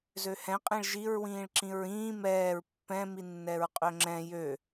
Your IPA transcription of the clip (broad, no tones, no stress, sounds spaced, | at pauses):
z ø h ɛ̃ qʼ ĩ ɭ ʒ i ɹ w ĩː ɭ ǁ ĩ ɹ ĩː m ɛː ɹ pː ɛ̃ m i nː ɛ ɹ qʼ ø ŋ͡ǁ ɛ̃ j ø